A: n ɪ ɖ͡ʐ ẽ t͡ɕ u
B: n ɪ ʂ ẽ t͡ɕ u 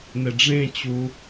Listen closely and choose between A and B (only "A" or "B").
A